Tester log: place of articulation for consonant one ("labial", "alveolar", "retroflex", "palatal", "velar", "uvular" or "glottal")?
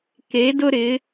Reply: velar